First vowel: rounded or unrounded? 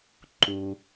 rounded